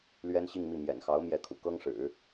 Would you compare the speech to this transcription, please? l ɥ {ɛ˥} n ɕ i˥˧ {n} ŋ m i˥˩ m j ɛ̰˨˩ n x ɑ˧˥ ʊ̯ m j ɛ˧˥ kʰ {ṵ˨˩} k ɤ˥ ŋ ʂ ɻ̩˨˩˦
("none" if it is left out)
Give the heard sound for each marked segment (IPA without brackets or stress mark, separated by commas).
ɛ˥, none, ṵ˨˩